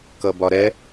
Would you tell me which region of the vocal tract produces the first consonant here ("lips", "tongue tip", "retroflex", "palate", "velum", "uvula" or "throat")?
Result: velum